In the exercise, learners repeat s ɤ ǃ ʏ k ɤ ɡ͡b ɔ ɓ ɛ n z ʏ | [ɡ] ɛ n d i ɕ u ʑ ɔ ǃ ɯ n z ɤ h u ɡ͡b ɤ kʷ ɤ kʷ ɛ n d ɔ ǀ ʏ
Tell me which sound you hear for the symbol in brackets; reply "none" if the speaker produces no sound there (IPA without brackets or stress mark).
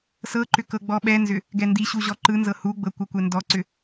ɡ